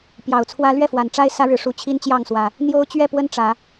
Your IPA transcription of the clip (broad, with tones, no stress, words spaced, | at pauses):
pjɑ˨˩ʊ̯t͡sʰwä˦ lɥɛ˥˨fwa˨˩n ʈ͡ʂa˦ɪ̯ sä˦ɻɻ̩˨˦ʂu˨˦ t͡ɕʰi˦nt͡ɕjɑ˥˨ŋswä˨˩ | n̪jo˦ʊ̯t͡ɕɥɛ˥˨pwə˦n ʈ͡ʂä˨˦